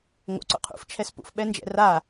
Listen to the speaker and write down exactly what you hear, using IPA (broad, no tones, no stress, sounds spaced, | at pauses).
ŋ o̰ ǀ o̰ qʰ ṵ f t͡ʃʰ ɛ s p ṵ f ɓ ɛ n d͡ʒ ɛ̰ r a